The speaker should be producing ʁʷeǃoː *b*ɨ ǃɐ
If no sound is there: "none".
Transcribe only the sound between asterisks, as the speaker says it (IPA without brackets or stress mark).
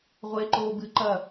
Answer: b